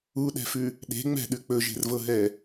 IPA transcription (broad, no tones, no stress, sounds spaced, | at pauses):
u ɗ ɛ̤ f ʉ | ɗ e̤ ŋ͡m ɛ̤ ɗ ʉ k͡p ɵ ʒ e̤ r v ɤ ɦ ɛ